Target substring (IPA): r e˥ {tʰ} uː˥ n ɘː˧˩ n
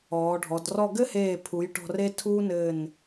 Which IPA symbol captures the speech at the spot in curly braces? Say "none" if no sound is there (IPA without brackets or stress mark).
tʰ